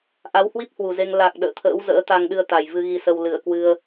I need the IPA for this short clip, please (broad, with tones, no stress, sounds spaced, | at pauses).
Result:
ʔ a˨˦ w h w i˦˥ p̚ h w u˨˩ z e˧ ŋ l a˨˩ k̚ ɗ ə̰ː˧˨ t̪ʰ ə̰ː˧˥ w z ə̰ː˧˥ t̪ a˧ ŋ ɗ ɨ˧ ə̯ t̪ a˨˩ j v ɨ˧ ɣ i˧ s ə˧ w l ɨ˧˩ ə̯ k w ɨ˧ ə̯